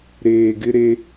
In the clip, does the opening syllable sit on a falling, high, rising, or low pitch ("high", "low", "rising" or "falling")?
low